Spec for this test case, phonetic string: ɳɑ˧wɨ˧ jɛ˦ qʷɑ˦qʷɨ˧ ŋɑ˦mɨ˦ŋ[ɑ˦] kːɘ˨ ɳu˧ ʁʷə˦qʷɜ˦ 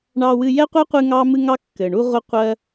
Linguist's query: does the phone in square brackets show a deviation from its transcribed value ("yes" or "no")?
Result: no